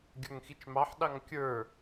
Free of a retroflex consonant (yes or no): yes